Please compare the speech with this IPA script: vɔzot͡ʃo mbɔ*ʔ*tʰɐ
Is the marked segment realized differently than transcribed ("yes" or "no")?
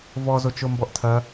no